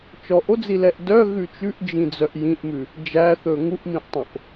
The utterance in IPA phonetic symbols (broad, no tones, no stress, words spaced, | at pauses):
t͡ʃɔʔod͡zilɛʔ dœɣʉ t͡ʃʉʔd͡ʒĩd͡zœʔ jĩʔmʉ | d͡ʒæθɵ ŋuʔmĩʔtˤõʔ